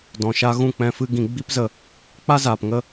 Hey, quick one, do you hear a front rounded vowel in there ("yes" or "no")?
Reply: no